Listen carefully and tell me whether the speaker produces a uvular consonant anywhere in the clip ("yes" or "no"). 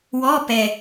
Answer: no